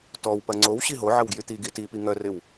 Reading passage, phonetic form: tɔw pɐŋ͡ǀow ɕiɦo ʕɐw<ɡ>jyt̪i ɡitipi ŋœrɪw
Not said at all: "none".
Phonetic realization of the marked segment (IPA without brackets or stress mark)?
ɡ